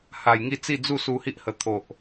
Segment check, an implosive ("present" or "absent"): absent